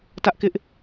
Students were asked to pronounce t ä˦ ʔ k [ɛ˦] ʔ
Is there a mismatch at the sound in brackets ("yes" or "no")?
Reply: yes